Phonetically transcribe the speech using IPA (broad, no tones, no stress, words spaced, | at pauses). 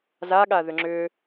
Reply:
zaɠa ðʏŋ͡ǁʏ